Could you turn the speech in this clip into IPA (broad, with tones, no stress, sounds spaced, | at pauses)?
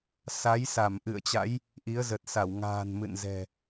s a˨˦ j s a˧˩ m ʔ ɨ̰˧˨ ə̯ t͡ɕ a̰˧˥ j | ʔ i˨˦ ə̯ z ə˨˩ t̚ s a˧˩ w ŋ a̤ː˨˩ n m ɨ̰˧˨ n z ɛ̤˨˩